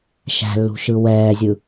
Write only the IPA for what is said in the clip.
ʃ æ̤ lː ṳ ʃ ɯ w ɛː zʲ ɯ

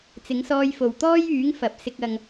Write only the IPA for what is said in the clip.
t͡s ɪ˨˥ ŋ s ɔː˧ j f o˨ w t̪ ɔː˥ j yː˨˥ ŋ f ɐ˨ p̚ s ɪ˧ k̚ ɐ˧ ŋ

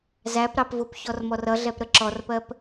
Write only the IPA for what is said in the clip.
z æ p ɾ ɑ p v ʊ p ç ɔ r m ɔ r ʌ ɮ ɛ p ɾ ə ǁ ɔ r p ɜ p

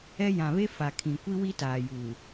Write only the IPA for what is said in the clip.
ɛ˦ j ã˨ β e˦ f a˨ kʰ ĩ˨ kʷ i˦ w i˦ t aː˨ j uː˨

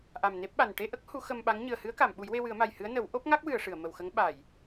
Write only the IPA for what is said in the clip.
ʔ a˨˩ m n e˦˥ p̚ ɓ a˨˩ n ʈ e˧ ʔ ə˦˥ k̚ h u˨˩˦ x ə˧ m ɓ a˧˥ ŋ ɲ ɨ˨˩ ə̯ h ɨ˧˥ ə̯ k a˨˩˨ m ɓ u˨˩˦ j w e˧ w ɨ˨˩˦ ə̯ m a˨˩ j h ɨ˧˥ ə̯ n ə˨˩˦ w ʔ o˦˥ p̚ ŋ a˦˥ k̚ w ɨ˨˩˨ ə̯ ʂ ɨ˨˩˨ ə̯ m ə˨˩ w x ə˧˥ ŋ ɓ a˨˩˨ j

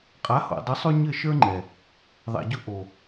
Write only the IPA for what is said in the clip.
qʼ a˨˦ h o̰˨ dˤ ʊ˨˦ sˤ ʉ˧ ɲ ɘ˦˨ ʃ ə˞˦ ŋ͡ǃ ɛ˨ | ðˤ ɛ̰˨ ɟ ʊ˧ ʔ o˨

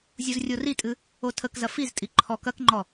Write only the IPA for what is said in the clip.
zʲ u z rʲ o r i tʼ ɨ | o tʰ ə k z ɐ f i z tʼ i ǃʰ ɔ k ɐ k ŋ͡ǃ ɔ

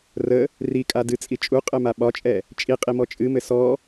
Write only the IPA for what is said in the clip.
r ə | r i kʼ a d ɨ t͡sʼ i t͡ʃʼ u qʼ ɘ m a ɓ ɒ t͡ʃʼ ɛ | t͡ʃʼ i qʼ i m ɔ t͡ʃʼ ɨ m ɘ s ɔ

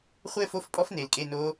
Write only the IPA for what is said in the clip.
χʷ ɘː˥˧ f o˧˥˧ f pʼ ɔ˦˥ f n eː˨ l kʼ e˧˥˧ n oː˦˥

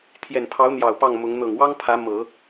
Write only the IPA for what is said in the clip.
t̪ʰ j ɛ˨˩ n pʰ ɑ˧˥ ʊ̯ n̪ j ɑ˨˩ ʊ̯ p ɑ˥˩ ŋ m ʊ˧˥ ŋ n̪ ɤ˨˩ ŋ w ɑ˥ ŋ pʰ ä˧˥ m ɤ˨˩˦

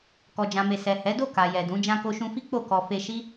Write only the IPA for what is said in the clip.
k ɔ˨ d͡ʒ ã˨ m e˨ s ɛ˨ h ɛ˨˦ d o˦˨ k a˨ j ɛ˨ d ũ˨˦ d͡ʒ ã˧ k o˧ ʃ ũ˧ f i˦ k͡p o˦˨ k ɔ˧ f e˧ ʃ i˦

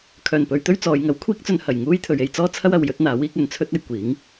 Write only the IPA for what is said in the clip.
kʰ œː˨˩ n p ɵ˨˧ ɥ t̪ ɵ˥ ɥ t͡s ɔː˨˧ j ŋ ɐ˨˥ w kʷʰ iː˥ k̚ t͡s ɵ˧ n h ɐ˨˩ j ŋ uː˥ j t̪ʰ ɵ˨˧ ɥ e˧ j t͡s ɔː˥ t͡sʰ ɐ˥ w ɐ˧ w j ɵ˥ t̚ n̪ aː˨˥ w iː˨˥ k̚ ɵ˧ n t͡sʰ ɵ˥ t̚ ɐ˨˧ j kʷ iː˨˥ ŋ

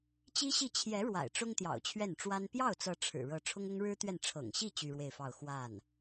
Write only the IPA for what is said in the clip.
t͡ɕ i˥ ɕ i˥˩ t͡ɕʰ j ɛ˧˥ ɻ w a̰˨˩ ɪ̯ ʈ͡ʂ ʊ˥ ŋ t̪ j ɑ̰˨˩ ʊ̯ t͡ɕʰ ɥ ɛ˥˩ n ʈ͡ʂ w a˥ n p j ɑ˥˩ ʊ̯ t͡s ɤ˧˥ ʈ͡ʂʰ ɻ̩˨˩ ɻ ɤ˧˥ ʈ͡ʂʰ ʊ˥ ŋ ʊ˥ ŋ ɻ ɻ̩˥ t̪ ɥ ɛ˥˩ n ʈ͡ʂʰ ɤ̰˨˩ ŋ ɕ i˥˩ t͡ɕ y˥ ɻ w e˥˧ ɪ̯ f ɑ˥˧ ʊ̯ x w a˥˩ n

